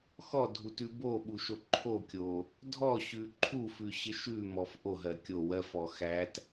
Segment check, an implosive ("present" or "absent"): present